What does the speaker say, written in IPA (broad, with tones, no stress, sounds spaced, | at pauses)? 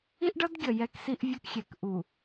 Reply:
i˦ ʔ ɖ ʌ˦ d ɡʲ ʌ˨ j ɛ˦ k s i˦ ʔ vʲ ʌ˦ k xʲ ɛ˨ k ʔ u˨